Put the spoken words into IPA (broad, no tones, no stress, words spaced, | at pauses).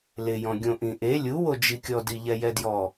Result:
lɪjɔ̃ ɡʲõʔĩʔe lʲuwod͡ʒikʲɔ diʎɛjɛdjɔ